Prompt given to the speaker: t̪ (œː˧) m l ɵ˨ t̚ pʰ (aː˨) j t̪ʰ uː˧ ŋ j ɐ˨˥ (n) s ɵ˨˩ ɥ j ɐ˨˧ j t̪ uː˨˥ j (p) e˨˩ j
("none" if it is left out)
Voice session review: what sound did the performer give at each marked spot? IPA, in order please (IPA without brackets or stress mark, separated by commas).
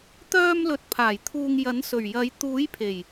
œː˧, aː˨˩, n, pʰ